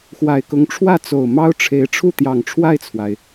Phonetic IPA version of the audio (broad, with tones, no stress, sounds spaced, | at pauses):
x w a˨˩ ɪ̯ k ʊ˧˥ ŋ ʈ͡ʂʰ w ä˥˩ t͡s o˨˩ ʊ̯ m ɑ˥ ʊ̯ ʈ͡ʂʰ e˧˥ ɪ̯ ʈ͡ʂʰ u˥˩ t̪ j ɑ˨˩ ŋ ʈ͡ʂʰ w a˥˩ ɪ̯ t͡sʰ w a˩ ɪ̯